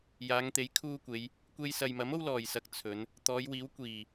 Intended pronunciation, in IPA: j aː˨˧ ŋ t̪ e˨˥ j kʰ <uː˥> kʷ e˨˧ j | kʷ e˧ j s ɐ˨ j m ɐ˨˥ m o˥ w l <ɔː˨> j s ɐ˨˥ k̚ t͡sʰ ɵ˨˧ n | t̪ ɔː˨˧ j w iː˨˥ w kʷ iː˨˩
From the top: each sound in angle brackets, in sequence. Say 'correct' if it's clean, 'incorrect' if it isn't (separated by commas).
correct, incorrect